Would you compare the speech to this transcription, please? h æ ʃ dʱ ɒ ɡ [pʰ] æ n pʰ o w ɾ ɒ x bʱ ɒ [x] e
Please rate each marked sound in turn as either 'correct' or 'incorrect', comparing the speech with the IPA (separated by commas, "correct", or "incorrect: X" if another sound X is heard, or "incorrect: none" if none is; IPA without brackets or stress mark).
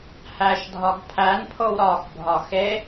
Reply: correct, correct